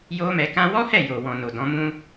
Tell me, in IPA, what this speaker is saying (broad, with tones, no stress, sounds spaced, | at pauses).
j o˦ m ɛ˧ k ã˦ w ɔ˦ h ɛ˦˨ j o˨ w ɔ̃˨ n o˨ d ɔ̃˨˦ m ũ˦